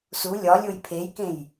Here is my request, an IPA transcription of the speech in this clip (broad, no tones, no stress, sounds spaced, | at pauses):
s u lʲ ɒ lʲ o j pʰ e j k ẽ j